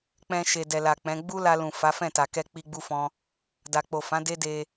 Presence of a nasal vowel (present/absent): present